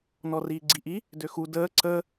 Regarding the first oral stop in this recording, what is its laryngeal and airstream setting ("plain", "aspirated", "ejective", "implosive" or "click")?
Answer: click